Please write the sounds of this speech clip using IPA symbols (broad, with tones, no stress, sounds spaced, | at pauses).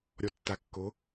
ɾʲ ɔ˨ tː a˨ kː o˨˦